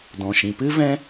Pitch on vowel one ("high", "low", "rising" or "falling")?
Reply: low